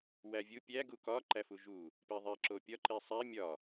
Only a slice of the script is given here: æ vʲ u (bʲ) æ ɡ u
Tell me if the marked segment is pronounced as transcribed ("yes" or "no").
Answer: no